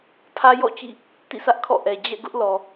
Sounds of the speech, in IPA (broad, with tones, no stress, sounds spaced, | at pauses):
pʰ ä˦ j ɔ̰˦˨ t͡ɕ ḭ˦˨ | t ḭ˦˨ s ä˦ ʔ kʰ ɔ̰˦˨ ʔ ɛ˨ d͡ʑ ɛ̰˦˨ ɡ ʊ˦ ʔ l ɔ˨